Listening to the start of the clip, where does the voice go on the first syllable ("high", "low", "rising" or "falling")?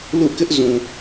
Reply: falling